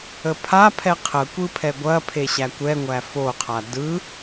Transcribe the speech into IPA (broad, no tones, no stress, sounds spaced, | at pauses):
ə pʰ a pʰ ɛ qʰ ə kʷ ɯ pʰ ɛ ɡʷ ɐ pʰ e ɕ æ kʷ ɛ ŋʷ æ f o qʰ a d ɯ